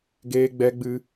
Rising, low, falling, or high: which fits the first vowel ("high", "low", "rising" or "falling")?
high